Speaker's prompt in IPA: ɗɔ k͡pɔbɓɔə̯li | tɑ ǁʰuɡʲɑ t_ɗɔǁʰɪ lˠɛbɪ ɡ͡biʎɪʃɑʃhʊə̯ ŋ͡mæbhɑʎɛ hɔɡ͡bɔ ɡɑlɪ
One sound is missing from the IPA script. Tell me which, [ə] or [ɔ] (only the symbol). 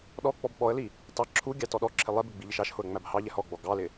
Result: ɔ